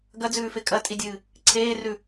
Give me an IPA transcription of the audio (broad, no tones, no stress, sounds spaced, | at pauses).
ɡ ɐ d͡z ʉː f e kʼ ɐ tʼ i dʲ ɨː | ǀʰ eː r ʉ